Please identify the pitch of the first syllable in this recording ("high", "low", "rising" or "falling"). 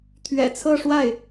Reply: low